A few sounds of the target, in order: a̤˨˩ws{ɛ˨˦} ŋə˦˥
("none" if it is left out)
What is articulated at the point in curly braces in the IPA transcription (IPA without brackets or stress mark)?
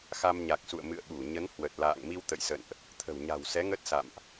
ɛ˨˦